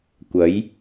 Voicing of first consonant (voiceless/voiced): voiceless